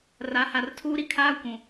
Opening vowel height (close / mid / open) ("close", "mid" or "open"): open